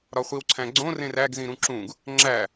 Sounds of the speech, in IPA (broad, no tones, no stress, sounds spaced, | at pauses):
ɾ ɒ χʷ i w ǀʰ æ̃ ɡ͡ǀ õ r ẽ r æ ɡ z ĩ ɾ ũ ǁ ũ ɡ | ŋ͡ǁ æ